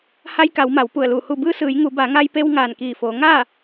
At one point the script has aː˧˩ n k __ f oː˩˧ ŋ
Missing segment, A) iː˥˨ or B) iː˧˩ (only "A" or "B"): B